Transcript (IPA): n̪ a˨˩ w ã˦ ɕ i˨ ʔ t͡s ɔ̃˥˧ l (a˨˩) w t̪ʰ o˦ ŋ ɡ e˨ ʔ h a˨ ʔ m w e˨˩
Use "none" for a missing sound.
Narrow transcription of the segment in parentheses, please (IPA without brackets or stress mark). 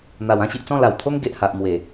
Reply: a˨˩